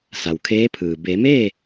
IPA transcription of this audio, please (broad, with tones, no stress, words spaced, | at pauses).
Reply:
sa˩wkʰeː˧˥pʰɯː˩ be˩˧meː˥˨